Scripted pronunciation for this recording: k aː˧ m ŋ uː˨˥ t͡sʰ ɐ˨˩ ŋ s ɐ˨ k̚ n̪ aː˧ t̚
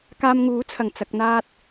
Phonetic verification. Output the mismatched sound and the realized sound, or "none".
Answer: s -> t͡s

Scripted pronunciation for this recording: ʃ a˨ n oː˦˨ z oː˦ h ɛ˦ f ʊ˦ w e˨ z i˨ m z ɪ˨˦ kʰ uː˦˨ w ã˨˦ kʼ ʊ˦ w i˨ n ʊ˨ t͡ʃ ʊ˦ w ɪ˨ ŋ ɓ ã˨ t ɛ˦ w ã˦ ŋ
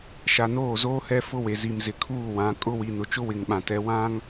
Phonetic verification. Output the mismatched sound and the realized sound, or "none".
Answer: none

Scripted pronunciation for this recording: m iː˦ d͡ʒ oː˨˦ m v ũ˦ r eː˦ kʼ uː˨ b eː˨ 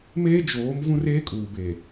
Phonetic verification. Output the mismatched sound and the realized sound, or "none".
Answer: iː˦ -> eː˦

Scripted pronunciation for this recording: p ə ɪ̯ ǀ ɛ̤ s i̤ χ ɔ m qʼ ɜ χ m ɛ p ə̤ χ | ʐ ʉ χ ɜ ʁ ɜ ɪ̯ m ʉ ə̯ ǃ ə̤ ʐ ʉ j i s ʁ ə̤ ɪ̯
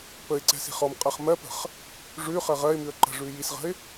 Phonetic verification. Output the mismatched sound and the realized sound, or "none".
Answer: ɛ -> ɜ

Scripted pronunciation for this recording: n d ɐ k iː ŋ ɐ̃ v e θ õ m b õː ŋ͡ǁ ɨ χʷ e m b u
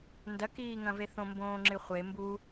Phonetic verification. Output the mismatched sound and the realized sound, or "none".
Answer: none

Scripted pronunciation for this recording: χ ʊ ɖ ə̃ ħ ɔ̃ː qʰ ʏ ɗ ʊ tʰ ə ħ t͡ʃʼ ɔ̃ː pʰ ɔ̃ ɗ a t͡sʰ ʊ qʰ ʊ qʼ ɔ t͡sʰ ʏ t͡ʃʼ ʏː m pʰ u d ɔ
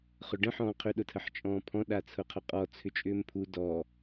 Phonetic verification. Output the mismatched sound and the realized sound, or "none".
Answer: none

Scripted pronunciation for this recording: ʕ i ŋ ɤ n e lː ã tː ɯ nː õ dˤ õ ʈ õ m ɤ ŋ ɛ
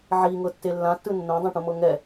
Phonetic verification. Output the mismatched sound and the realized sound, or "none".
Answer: n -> tː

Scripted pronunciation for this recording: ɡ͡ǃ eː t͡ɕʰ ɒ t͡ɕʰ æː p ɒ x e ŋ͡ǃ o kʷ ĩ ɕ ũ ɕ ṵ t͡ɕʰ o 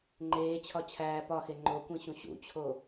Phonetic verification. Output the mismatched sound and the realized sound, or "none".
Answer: ɡ͡ǃ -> ŋ͡ǃ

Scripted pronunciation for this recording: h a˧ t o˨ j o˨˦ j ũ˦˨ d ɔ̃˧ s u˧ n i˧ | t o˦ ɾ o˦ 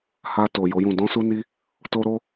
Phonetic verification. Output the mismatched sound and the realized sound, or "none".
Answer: none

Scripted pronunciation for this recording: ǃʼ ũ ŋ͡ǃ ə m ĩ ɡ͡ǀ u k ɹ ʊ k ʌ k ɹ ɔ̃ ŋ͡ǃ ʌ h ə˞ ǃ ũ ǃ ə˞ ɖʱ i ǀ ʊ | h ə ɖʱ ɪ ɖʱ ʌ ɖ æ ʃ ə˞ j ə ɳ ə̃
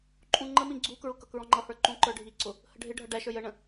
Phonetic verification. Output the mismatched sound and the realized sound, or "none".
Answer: none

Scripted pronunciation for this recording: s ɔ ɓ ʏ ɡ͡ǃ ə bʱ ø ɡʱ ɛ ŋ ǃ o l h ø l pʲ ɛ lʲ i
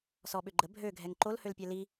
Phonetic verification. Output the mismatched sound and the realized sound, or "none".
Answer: lʲ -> l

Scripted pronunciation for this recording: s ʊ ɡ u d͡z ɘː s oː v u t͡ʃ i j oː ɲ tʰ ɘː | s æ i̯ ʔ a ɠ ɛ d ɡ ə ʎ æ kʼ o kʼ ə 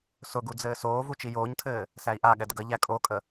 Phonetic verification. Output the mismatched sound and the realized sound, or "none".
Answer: none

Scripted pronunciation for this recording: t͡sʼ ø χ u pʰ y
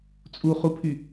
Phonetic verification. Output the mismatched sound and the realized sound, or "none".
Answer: ø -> u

